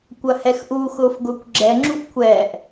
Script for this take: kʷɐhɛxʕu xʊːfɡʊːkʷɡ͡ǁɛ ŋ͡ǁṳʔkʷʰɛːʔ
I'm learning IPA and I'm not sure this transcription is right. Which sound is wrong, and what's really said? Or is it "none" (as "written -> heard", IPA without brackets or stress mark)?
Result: ʕ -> ʔ